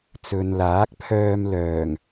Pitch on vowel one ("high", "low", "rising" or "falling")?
low